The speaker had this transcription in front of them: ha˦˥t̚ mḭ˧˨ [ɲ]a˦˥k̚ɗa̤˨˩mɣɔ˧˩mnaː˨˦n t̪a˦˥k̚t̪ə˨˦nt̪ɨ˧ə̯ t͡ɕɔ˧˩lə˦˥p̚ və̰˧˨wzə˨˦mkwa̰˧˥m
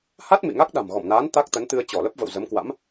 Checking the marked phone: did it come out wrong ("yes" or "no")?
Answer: yes